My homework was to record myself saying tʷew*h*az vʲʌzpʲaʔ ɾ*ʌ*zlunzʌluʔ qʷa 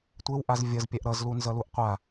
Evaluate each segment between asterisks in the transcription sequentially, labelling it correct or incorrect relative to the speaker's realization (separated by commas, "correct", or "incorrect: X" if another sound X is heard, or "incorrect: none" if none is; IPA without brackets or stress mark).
incorrect: ʔ, correct